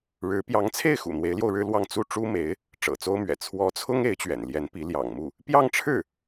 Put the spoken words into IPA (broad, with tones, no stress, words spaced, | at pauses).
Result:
ɻɻ̩˧˥ pjɑ˧˥ŋt͡sʰe˥˩ɪ̯xṵ˨˩ n̪we˧˥ɪ̯ljo˧ʊ̯ ɻɻ̩˥lwɑ˥˧ŋ t͡su˥˩ ʈ͡ʂu˥me˧˥ɪ̯ | ʈ͡ʂɤ̰˨˩t͡so˥ʊ̯mɥɛ̰˨˩ t͡sʰwɔ˧˥t͡sʰʊ˥ŋ e˧˥ɪ̯t͡ɕɥɛ̰˨˩nljɛ˧˥npi˧˥ ljɑ̰˨˩ŋmu˥˩ | pjɑ˥˧ŋʈ͡ʂʰɻ̩˥˩